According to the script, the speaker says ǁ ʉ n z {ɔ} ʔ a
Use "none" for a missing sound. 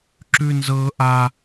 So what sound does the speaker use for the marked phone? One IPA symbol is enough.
ɤ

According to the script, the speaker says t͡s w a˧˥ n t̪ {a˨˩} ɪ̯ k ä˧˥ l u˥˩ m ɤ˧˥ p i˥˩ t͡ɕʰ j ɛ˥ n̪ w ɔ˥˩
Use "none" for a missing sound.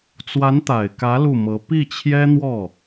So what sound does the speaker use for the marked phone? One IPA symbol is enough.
a˨˩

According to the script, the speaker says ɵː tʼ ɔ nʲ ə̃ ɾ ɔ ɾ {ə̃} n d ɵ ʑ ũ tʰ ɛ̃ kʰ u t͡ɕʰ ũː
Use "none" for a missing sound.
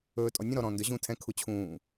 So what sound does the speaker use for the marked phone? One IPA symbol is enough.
ɔ̃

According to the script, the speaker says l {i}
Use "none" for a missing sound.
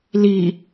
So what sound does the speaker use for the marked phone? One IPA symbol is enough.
i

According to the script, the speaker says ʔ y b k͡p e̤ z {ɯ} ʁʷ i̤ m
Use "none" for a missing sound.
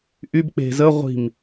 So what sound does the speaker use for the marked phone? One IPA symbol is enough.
ə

